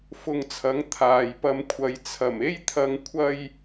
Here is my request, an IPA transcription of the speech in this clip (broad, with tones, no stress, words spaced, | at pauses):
fʊ˧ŋt͡sʰɐ˨˥ŋ t̪ʰaː˨jpɐ˧mkʷʰɐ˨˧j t͡sʰɐ˨˩me˥jt̪ʰɐ˧ŋ kʷʰɐ˥j